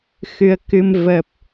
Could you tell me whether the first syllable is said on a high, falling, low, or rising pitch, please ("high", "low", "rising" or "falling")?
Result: rising